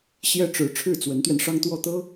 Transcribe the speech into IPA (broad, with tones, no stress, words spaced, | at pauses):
ɕjɛ˥ʈ͡ʂɻ̩˧˥ ʈ͡ʂʰɻ̩˥˩t͡swə˧˥nt̪ɥɛ˧n ʂɑ˥ŋt̪wɔ˥˩t̪ɤ˥